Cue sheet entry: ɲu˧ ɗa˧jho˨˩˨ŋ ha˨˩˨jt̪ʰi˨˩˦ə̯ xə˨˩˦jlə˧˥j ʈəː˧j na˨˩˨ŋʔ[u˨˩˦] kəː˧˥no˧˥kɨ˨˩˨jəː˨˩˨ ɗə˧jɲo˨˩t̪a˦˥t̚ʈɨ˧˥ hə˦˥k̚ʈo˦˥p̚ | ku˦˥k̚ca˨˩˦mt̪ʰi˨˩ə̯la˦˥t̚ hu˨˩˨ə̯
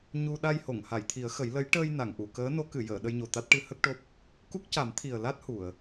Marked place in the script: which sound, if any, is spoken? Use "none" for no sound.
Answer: u˨˩˨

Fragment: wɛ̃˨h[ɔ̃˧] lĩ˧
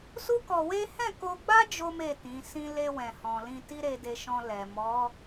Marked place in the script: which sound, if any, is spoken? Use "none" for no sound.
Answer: ɔ̃˨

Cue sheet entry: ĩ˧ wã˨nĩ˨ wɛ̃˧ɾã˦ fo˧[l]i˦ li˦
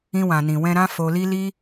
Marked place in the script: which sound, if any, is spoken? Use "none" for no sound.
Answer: l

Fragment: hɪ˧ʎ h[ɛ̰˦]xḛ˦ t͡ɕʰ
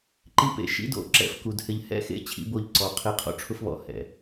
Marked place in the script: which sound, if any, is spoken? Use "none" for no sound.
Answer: ɛ̰˦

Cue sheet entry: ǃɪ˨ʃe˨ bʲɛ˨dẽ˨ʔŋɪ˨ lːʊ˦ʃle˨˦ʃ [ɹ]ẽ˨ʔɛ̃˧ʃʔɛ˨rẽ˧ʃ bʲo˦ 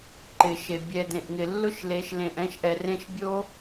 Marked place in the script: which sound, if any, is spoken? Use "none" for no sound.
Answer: l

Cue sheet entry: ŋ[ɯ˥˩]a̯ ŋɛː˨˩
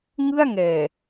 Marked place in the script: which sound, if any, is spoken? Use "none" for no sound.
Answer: ɯ˥˩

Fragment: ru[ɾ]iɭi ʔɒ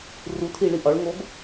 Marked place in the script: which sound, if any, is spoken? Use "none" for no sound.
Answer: tʰ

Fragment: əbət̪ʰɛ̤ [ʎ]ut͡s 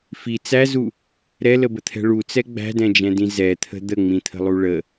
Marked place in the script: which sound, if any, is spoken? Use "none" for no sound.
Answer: ɭ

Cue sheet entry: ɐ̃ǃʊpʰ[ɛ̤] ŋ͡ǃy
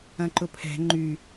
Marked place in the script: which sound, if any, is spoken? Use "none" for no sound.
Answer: ɛ̤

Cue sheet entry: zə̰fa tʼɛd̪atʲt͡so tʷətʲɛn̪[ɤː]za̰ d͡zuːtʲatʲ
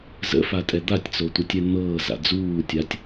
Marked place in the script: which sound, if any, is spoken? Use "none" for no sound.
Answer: ɤː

